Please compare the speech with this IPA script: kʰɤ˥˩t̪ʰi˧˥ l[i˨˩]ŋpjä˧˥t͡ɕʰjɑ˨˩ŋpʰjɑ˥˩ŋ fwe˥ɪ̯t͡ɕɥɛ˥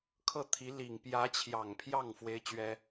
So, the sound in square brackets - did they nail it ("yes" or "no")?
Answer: yes